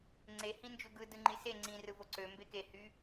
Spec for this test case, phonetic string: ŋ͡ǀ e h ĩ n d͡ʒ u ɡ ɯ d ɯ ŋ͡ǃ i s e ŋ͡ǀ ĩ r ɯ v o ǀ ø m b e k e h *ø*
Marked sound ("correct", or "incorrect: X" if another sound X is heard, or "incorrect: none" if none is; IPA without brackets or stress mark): incorrect: y